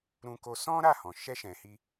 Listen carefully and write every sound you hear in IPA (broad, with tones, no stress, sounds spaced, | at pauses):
ɾ ũ˧ k o˧ s ɔ̃˦ ɾ a˦˨ h ɔ̃˨ ʃ ɛ˧ ʃ ɛ̃˨ h i˧